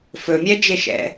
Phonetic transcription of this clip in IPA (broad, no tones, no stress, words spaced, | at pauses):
fɵ mʲɛd͡ʒeʃɛ̰